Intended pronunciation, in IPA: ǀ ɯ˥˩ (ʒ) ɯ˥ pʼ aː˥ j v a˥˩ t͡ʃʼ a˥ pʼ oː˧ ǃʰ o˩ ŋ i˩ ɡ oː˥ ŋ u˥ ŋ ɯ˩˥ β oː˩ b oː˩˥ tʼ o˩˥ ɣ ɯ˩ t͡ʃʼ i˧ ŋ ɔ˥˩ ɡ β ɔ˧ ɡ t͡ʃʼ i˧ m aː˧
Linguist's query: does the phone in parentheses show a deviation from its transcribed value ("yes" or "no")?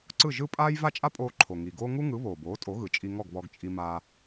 no